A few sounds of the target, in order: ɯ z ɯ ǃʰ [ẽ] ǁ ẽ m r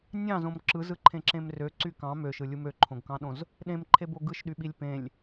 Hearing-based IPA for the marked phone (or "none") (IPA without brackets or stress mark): ẽ